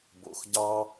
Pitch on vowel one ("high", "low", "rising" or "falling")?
low